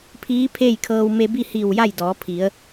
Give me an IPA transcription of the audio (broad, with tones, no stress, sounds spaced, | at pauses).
pʰ iː˧˥ pʰ eː˥˨ j kʰ ɤː˧ w m e˧ b i˥˨ h i˧˩ w j a˥˨ j d ɔː˩˧ pʰ i˩˧ ə̯